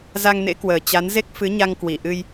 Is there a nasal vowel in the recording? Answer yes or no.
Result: no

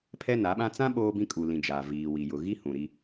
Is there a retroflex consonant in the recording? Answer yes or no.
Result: no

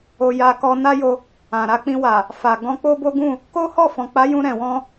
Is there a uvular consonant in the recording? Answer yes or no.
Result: no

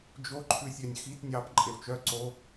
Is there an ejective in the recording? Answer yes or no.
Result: yes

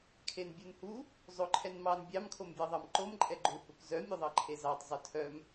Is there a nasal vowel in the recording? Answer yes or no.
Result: no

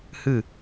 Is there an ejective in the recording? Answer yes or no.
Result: no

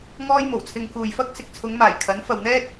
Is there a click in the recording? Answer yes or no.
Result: no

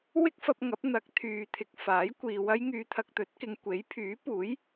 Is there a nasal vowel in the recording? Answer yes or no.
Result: no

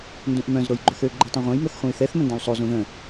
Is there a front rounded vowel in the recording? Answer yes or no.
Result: yes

